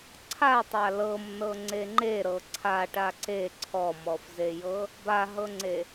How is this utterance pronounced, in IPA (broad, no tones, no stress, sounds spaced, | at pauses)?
ǀʰ a tˤ a l ɤ m n ɤ ŋ͡ǀ e ŋ͡ǃ e ɾ ɤ ǀʰ a ʈ a ǀ e ǀʰ ɔ m ɔ f z e j ɤ | b a ɦ ɤ ŋ͡ǀ e